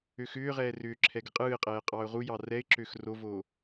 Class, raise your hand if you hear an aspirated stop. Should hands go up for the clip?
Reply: yes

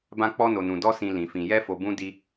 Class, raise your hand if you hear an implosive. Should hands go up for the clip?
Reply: no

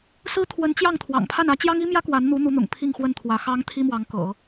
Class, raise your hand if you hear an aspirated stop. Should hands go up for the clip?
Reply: yes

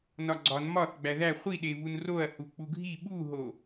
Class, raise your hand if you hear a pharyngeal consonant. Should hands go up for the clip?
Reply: no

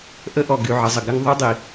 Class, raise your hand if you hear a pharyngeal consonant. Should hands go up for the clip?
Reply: yes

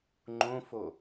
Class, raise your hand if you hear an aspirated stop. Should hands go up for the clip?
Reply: no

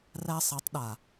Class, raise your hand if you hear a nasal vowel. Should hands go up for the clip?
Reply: no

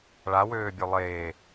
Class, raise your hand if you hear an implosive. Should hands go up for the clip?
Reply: no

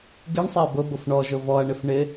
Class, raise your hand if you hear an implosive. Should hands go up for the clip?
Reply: no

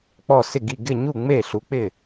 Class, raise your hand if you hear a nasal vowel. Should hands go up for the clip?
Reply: no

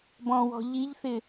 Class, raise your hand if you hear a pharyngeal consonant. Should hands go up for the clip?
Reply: no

